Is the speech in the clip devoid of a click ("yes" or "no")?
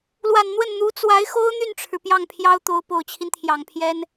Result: yes